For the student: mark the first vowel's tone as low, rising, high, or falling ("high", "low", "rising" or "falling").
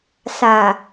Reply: low